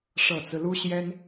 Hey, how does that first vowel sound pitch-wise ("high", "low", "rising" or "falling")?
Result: low